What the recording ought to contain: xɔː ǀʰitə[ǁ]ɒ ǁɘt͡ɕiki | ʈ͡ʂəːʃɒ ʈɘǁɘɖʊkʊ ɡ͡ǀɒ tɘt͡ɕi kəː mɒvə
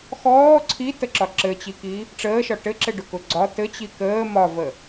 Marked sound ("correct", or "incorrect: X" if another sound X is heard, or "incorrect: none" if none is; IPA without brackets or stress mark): correct